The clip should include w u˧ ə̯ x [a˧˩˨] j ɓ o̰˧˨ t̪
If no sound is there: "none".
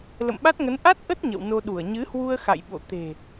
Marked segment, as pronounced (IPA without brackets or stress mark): a̰˧˨